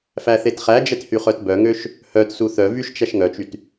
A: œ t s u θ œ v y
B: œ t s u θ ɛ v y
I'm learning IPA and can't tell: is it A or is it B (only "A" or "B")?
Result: A